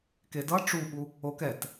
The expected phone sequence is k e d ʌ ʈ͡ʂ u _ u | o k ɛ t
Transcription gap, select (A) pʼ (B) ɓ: B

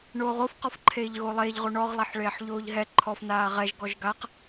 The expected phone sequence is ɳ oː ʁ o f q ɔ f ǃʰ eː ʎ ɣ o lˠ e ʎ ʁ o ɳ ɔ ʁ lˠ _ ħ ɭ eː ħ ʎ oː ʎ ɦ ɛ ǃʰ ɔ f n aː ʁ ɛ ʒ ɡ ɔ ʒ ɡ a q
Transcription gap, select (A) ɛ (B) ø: A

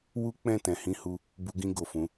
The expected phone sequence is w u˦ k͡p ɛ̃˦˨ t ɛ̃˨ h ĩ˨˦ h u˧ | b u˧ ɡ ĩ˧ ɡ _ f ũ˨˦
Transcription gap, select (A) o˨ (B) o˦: A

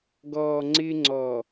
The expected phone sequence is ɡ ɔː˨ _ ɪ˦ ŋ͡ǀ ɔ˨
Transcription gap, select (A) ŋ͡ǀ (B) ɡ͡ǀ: A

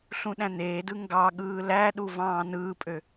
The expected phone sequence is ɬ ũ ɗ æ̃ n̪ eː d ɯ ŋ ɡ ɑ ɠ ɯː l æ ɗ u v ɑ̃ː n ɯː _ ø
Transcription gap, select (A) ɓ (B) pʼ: B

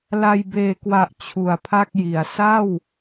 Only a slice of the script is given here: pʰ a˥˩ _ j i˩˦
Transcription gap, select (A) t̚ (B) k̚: B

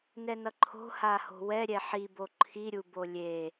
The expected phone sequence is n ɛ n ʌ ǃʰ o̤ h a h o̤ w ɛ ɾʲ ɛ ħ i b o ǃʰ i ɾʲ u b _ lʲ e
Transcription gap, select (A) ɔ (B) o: B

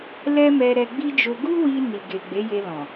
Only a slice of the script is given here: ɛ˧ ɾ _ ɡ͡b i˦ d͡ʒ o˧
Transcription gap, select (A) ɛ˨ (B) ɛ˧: B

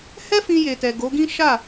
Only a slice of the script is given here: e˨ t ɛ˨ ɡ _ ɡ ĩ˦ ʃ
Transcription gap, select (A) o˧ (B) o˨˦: B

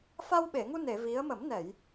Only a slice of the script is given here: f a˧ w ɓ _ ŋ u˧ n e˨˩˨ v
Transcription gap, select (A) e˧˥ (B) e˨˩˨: B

